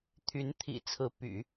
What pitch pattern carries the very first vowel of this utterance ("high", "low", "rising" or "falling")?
rising